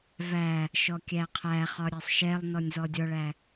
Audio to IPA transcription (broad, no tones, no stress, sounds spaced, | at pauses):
v æ | ʃ ɔ kʲ æ qʰ æ χ ɒ ɾʲ æ sˤ ʃ ɛ lˠ n ɔ nʲ z ɔ dʲ ɔ ɭ æ